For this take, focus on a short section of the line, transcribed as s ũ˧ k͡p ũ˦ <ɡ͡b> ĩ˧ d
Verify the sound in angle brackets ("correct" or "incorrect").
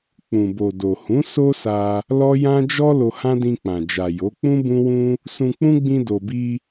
correct